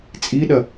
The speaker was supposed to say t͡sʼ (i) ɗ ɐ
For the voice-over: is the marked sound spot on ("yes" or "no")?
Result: yes